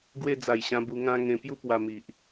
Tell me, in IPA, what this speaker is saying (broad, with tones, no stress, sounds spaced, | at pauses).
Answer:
ɡ w e˧ d͡z a˨˩ j ɕ ã˧ b u˧ ŋ ã˧ ŋ ẽ˧ p j u˦ p w a˧ m i˨ ʔ